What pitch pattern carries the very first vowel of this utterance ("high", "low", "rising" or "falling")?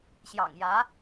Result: low